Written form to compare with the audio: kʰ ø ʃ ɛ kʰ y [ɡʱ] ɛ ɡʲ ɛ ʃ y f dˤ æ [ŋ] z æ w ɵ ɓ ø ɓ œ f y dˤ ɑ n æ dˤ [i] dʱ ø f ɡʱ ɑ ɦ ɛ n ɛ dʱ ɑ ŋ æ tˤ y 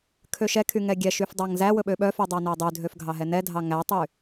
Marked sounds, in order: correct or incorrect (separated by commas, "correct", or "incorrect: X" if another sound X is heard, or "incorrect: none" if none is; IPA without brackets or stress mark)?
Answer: incorrect: ŋ, correct, incorrect: y